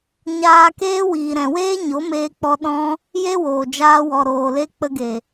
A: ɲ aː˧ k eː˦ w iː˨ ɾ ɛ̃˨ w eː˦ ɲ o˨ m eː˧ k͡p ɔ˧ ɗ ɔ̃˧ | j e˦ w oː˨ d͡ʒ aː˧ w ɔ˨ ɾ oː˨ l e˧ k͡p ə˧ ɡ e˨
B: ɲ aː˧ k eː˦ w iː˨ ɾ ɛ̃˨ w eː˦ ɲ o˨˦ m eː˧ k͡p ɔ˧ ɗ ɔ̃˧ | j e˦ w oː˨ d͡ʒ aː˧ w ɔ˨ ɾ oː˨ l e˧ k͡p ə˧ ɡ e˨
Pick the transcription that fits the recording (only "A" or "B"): B